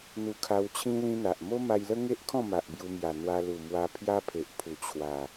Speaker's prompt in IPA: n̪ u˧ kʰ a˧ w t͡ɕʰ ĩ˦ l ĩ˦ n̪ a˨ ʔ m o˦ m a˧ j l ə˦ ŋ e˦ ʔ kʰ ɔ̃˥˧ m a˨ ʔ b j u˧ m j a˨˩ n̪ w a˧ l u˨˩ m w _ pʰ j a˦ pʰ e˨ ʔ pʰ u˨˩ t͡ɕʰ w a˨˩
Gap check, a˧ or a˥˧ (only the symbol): a˧